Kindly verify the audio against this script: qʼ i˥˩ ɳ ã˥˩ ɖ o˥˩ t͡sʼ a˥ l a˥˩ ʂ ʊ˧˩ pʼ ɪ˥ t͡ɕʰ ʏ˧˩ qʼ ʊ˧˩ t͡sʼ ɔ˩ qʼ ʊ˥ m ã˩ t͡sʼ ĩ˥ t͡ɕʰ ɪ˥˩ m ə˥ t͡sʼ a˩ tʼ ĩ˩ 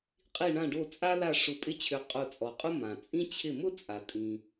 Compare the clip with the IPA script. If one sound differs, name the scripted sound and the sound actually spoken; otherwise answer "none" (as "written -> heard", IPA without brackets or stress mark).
ə˥ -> ʊ˥